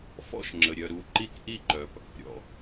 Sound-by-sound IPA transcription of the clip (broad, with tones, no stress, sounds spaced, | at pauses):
f ɔ̰˦ ʃ ŋ͡ǁ ə˩ ɾʲ œ˩ ɾ u˨ ǃ i˦ k ʔ i˦ ǃ œ˩ p | ɾʲ ɔ̰˩